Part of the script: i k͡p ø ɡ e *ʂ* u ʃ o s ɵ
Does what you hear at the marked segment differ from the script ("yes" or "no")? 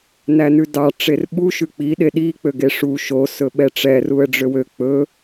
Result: no